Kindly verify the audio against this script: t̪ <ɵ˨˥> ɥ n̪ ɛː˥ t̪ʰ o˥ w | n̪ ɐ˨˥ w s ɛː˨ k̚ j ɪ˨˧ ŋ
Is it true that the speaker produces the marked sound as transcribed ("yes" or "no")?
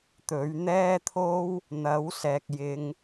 yes